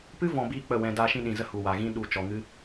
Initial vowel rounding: unrounded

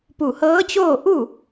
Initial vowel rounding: rounded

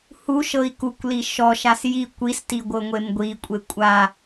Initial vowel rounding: rounded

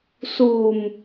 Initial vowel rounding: rounded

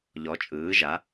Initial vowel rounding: rounded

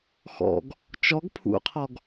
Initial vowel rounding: rounded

